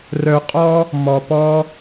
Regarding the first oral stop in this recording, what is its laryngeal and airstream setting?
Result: ejective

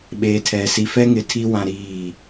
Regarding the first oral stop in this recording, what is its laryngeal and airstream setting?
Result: implosive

